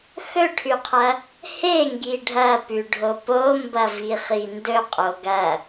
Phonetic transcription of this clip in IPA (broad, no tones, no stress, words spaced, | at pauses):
xɵʈʰʉqʰɐ | heŋɡi ɖʱɐpʉɖʱo pombɐviχi ndɵqʼo ɡɐ